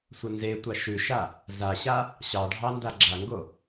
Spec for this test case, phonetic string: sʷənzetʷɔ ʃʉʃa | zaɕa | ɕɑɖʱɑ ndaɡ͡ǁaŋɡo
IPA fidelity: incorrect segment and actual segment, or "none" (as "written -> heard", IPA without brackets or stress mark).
ɔ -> ɑ